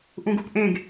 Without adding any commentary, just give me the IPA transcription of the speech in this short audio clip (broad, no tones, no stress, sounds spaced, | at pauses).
ʔ ũ ɡ u p ʔ ẽ ɡ